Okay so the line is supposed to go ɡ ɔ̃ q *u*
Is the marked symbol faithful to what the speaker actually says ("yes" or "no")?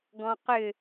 no